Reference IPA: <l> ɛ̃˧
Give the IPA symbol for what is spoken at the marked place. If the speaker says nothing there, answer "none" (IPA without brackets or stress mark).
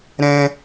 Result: ɾ